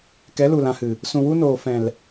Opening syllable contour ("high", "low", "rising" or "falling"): rising